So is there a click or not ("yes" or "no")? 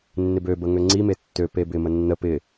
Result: yes